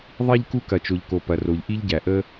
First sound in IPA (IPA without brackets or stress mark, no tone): ðˤ